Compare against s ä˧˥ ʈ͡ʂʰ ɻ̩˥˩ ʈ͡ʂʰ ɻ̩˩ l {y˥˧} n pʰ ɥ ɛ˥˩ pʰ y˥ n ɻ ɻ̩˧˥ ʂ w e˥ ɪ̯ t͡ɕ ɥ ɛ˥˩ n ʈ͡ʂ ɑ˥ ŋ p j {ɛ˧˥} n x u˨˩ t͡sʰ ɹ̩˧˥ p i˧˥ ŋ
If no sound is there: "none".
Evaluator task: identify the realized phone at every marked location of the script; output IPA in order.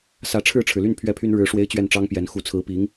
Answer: y˥˧, ɛ˧˥

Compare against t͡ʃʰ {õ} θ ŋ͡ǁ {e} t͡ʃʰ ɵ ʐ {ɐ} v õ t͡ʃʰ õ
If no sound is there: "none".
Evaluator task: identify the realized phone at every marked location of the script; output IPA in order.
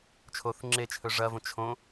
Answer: o, e, ɐ

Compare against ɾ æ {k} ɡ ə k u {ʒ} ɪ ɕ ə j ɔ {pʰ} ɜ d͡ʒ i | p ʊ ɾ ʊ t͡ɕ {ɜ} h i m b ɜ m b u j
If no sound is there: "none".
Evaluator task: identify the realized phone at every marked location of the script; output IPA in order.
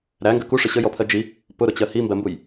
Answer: ŋ, ʂ, pʰ, ɜ

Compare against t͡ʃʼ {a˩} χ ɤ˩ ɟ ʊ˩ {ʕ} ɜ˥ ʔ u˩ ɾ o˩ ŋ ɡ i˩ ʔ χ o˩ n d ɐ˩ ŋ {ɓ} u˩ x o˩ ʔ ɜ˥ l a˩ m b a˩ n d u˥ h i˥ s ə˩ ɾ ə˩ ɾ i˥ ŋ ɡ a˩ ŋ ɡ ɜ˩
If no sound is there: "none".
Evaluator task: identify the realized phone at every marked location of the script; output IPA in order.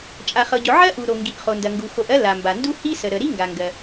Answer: a˩, ʕ, ɡ

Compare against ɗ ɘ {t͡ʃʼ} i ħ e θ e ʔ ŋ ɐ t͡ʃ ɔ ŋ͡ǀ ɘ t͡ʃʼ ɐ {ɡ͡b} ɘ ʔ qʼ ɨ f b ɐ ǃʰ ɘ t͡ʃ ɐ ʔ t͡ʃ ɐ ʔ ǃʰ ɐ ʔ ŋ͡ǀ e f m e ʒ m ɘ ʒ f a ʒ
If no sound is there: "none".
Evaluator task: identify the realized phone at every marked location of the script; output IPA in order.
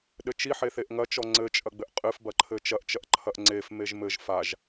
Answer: t͡ʃ, ɡ͡b

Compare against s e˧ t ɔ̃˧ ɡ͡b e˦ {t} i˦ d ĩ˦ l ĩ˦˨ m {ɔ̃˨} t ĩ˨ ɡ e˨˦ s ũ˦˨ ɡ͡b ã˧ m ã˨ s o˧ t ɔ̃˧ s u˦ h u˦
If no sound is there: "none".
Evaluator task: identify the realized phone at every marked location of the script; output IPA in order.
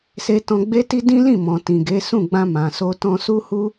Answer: t, ɔ̃˨

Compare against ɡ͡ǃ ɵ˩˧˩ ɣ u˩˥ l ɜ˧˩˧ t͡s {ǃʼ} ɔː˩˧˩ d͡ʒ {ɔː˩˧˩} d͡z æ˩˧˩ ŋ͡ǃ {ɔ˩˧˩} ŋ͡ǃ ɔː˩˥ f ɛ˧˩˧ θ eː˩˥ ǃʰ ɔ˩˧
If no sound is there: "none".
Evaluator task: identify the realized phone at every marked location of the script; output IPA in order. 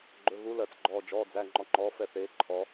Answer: ɡ͡ǃ, ɔː˩˧˩, ɔ˩˥

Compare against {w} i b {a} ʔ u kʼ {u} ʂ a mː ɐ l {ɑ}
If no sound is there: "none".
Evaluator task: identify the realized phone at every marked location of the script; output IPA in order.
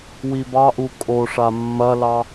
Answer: w, ɑ, o, ɑ

